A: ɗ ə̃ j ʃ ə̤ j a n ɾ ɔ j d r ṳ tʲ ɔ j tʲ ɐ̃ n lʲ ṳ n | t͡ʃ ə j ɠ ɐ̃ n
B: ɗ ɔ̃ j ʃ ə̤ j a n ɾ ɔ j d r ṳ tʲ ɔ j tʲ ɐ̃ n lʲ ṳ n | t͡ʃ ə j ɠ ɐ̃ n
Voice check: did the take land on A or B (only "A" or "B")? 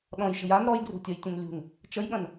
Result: B